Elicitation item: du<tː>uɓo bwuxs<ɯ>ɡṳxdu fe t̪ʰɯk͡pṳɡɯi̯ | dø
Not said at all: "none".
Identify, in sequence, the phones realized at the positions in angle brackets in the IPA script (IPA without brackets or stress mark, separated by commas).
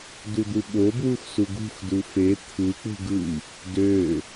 d̪, u